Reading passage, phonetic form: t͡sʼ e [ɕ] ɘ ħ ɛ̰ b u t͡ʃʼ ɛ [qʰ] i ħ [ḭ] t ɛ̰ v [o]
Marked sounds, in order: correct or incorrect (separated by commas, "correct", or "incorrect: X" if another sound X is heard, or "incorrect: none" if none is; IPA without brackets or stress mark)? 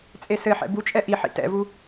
incorrect: s, incorrect: ʔ, correct, incorrect: u